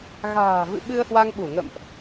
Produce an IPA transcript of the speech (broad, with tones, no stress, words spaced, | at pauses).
ɣa̤ː˨˩vɨ̰˧˨ ɓɨ˧ə̯hwa˧ŋɓu˧˩ŋə̰˧˨mʔ